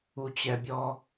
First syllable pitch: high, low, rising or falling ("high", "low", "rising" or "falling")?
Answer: low